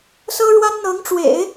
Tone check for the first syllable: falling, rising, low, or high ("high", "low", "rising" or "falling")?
high